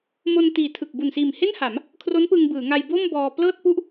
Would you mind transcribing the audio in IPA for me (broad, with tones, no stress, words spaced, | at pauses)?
mo˧n tiː˨˩tʰɯ˨˩k̚ bu˨˩nsiː˨˩m he˥˩nha˩˦m | kʰro˦˥npɯ˧ŋbɯː˩˦ŋa˧j bo˥˩mbɔː˧ plɤː˥˩t̚pu˥˩ʔ